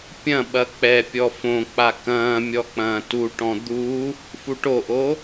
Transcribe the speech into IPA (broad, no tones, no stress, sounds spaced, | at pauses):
pʲ ɐ̃ ɓ ɐ k͡p ɛ pʲ ɔ f õ k͡p a k ɐ̃ː mʲ ɔ k͡p ɐ̃ː t u ʈ ɔ̃ d̪ u | f u ʈ o ʔ o